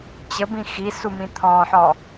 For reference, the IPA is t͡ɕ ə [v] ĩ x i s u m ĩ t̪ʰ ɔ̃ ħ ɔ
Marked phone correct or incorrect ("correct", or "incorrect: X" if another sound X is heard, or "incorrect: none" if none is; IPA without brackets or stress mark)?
incorrect: b